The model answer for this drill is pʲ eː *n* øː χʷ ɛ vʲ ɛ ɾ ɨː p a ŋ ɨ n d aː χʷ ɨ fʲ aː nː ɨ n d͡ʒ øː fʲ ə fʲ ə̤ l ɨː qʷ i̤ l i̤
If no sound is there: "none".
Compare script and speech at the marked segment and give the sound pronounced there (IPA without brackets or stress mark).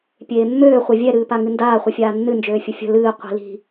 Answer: mː